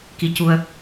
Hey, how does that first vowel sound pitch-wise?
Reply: rising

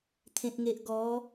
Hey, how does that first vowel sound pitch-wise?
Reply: low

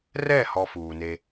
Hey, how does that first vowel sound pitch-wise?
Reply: falling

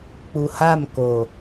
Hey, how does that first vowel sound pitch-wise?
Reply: low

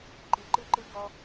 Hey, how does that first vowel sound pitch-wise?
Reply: rising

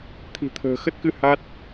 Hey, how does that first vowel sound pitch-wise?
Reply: low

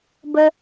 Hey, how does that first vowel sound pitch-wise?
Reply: high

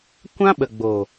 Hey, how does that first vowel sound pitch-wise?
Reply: high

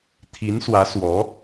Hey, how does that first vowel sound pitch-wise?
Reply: rising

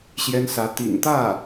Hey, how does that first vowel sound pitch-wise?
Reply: high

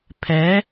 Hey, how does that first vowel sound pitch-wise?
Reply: rising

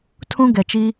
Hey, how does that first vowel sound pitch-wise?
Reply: high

